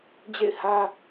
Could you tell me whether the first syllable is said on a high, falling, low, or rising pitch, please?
falling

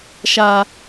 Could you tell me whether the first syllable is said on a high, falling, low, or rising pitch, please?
high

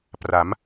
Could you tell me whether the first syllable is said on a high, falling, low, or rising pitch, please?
rising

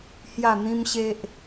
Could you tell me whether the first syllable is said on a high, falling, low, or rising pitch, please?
falling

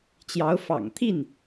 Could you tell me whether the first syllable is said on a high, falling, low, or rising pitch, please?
rising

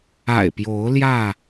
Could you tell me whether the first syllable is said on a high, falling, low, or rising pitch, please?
low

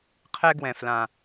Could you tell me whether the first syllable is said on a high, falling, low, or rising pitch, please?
high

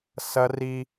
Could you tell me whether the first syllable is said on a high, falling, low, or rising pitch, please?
high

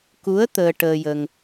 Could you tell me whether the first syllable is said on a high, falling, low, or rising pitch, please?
rising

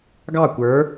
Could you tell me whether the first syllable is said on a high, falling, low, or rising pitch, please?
falling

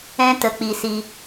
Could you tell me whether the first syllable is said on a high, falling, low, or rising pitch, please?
high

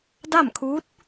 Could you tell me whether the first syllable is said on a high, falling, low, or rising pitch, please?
falling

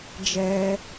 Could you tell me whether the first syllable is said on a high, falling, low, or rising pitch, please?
high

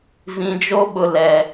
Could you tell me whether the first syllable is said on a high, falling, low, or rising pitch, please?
low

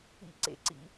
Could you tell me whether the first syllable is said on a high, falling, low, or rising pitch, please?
falling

